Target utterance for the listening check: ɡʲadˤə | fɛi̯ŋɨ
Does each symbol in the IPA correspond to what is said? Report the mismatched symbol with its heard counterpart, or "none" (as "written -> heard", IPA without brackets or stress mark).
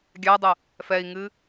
none